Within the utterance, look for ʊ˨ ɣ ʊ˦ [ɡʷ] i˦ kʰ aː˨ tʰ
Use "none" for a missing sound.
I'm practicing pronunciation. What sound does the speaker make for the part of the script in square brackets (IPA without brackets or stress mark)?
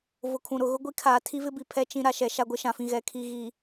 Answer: ɡʷ